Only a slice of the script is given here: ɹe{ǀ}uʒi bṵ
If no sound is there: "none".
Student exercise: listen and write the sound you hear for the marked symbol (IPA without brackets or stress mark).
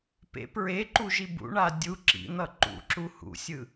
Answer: ǃ